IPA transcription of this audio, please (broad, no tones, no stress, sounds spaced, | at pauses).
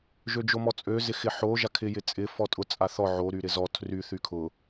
ʒ ø d͡ʒ o m ɔ t͡sʼ ø z ɪ x ɪ ħ o ʒ a kʰ ɪ j ɪ t͡sʼ ɪ f ɔ tʼ ʊ t͡sʼ a θ ɔ ʕ o ɾ y ɾ ɪ z ɔ tʰ r y θ y kʰ ʊ